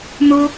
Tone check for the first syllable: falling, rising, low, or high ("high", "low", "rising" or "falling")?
high